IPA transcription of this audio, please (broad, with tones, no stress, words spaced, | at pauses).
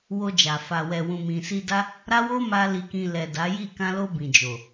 wo˧d͡ʒa˨ fa˨wɛ˨ wũ˨mĩ˨ si˧da˦ | ɾa˦wo˦ma˧ li˧kĩ˧ lɛ˨ da˨˦ji˦˨ kã˧lo˧ bĩ˨d͡ʒo˨